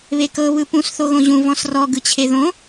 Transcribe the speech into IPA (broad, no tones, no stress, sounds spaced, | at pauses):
β e k ɤ β ɯ p ũ s θ o ɣ õ ʑ ũ v ɔ̃ s r ɔ ɡ ɯ t͡ɕʰ e ð õ